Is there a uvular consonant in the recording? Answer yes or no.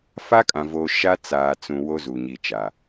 no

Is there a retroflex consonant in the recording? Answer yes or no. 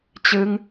no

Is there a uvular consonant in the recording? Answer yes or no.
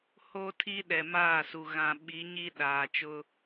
no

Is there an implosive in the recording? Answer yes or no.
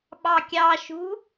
yes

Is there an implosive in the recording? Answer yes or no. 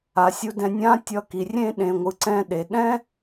yes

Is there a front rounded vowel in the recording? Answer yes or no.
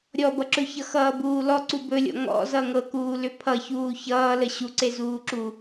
yes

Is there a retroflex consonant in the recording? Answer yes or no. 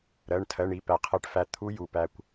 yes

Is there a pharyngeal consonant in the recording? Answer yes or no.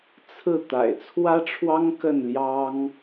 no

